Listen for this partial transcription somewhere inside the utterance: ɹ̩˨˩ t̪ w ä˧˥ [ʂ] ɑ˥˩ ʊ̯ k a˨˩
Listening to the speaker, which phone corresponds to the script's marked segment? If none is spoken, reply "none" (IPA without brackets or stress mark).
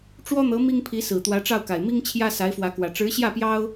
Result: ʈ͡ʂ